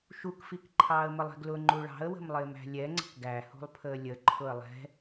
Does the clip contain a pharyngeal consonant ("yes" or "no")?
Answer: no